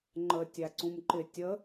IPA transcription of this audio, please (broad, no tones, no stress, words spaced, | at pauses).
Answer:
ŋ͡ǃə tʲæǀũmǃɪ tʲə